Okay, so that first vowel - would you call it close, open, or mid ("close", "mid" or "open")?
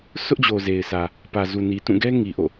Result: close